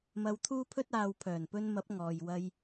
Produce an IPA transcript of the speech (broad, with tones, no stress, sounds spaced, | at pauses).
m ɐ˧ w t̪ʰ uː˥ pʰ ɵ˥ t̚ aː˨ w pʰ œː˨˩ n p ɵ˧ n m ɐ˨˥ p̚ ŋ ɔː˨ j w ɐ˧ j